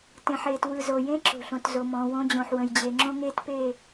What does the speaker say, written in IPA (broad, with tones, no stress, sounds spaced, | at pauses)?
t ẽ˨ ħ eː˨ t w ɯ˨ z o˨ j ẽ˦ ǁ o̤˨ ɬ õ˨ t z o˨ m ɔ̃ː˨ w õ˦ d͡ʑ õ˨ ħ w ə̃˨ j d͡ʑ e˨ ŋ͡ǁ õ˦ ŋ eː˦ t p e˦˨